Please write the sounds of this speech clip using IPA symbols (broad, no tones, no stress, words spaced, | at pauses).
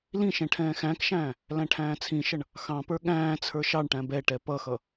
lĩʃɛ̃ ʈʰɛ̃ːxæ̃kʃæ̃ː | læ̃ʈʰæ̃ːt͡sʰĩʃʌɳ | xɑ̃pə˞ ɠæ̃ː t͡sʰə˞ʃɑɳʈæ̃ bɛʈɛ pʌxʌ